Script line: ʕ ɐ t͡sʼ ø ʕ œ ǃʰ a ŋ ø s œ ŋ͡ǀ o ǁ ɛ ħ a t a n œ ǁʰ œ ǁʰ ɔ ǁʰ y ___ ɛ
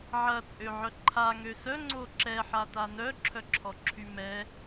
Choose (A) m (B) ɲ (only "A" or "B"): A